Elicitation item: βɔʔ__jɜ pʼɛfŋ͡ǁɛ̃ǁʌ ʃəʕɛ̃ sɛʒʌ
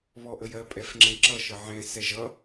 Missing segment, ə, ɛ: ə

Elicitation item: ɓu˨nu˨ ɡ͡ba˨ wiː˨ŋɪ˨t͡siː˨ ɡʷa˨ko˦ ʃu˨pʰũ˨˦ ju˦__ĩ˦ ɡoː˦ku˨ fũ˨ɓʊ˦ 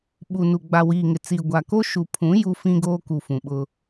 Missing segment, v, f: f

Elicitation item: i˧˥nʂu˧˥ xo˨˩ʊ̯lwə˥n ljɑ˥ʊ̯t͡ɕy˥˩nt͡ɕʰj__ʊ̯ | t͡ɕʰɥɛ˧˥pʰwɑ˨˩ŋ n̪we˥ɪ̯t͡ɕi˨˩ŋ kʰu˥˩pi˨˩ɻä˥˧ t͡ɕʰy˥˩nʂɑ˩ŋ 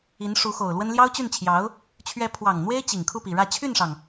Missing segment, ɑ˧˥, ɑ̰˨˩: ɑ˧˥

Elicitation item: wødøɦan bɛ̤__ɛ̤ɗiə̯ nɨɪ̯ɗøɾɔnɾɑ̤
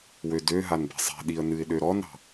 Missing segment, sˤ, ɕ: sˤ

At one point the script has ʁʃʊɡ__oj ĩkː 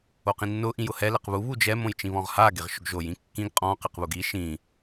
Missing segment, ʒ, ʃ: ʒ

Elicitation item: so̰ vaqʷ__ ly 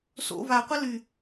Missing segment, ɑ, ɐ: ɐ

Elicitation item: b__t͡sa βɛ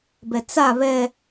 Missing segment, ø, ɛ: ɛ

